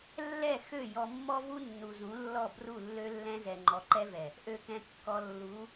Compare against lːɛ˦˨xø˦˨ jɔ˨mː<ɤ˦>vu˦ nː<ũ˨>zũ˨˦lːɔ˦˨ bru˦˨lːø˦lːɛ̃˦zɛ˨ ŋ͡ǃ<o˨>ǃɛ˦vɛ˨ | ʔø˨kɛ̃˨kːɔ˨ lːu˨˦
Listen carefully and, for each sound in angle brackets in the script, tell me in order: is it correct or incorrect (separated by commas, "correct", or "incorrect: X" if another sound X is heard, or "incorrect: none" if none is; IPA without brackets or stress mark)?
incorrect: ɔ˦, incorrect: u˨, incorrect: ɔ˨